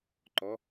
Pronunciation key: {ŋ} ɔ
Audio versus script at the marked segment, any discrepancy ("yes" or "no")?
yes